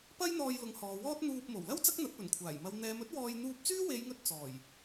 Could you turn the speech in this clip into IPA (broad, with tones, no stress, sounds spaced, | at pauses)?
p ɐ˥ j n̪ ɔː˧ j l ʊ˨˥ ŋ h ɔː˨ w ɔː˥ t̚ n̪ uː˧ p̚ m o˨˩ w l ɐ˥ w t͡s ɐ˥ k̚ n̪ ɐ˨˥ t̚ p ɵ˨˩ n kʷʰ aː˨˩ j m ɐ˨˧ w n̪ ɛː˨˧ m ɵ˥ t̚ w ɔː˧ j n̪ uː˧ p̚ t͡s yː˥ w e˨˧ j ŋ ɵ˧ t̚ t͡s ɔː˨˩ j